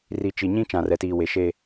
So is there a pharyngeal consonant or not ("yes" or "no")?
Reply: no